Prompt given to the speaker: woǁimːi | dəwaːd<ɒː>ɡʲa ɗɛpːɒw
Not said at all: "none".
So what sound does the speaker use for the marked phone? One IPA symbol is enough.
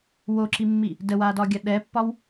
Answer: ɒː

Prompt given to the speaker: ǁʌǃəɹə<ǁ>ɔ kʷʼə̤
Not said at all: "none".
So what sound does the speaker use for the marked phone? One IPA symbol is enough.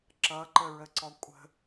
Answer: ǀ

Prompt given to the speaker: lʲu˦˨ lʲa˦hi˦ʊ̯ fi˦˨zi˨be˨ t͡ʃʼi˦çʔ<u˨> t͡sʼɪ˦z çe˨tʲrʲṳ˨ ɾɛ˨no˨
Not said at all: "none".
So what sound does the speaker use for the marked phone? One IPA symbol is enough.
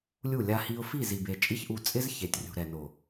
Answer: u˧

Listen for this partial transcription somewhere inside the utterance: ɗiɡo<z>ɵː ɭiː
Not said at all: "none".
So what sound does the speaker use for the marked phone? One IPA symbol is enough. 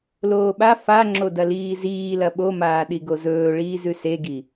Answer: z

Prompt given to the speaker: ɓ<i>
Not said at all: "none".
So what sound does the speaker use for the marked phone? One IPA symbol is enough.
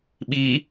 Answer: i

